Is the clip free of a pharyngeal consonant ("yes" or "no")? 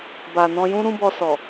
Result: yes